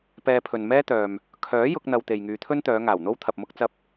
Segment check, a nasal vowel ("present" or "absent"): absent